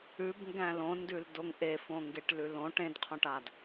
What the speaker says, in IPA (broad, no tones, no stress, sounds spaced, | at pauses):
ʉ b ŋ ɡ æ̃ l õ n d ʉ l d o ŋ ʔ e f õ ŋ ɡ e ʈ l ʉ l õ ʈ ẽ d qʰ õ ʈ a d